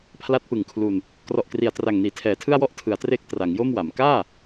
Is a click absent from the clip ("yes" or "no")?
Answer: yes